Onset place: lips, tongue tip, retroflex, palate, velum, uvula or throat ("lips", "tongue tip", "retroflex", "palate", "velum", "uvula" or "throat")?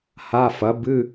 throat